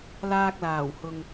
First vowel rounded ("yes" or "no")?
no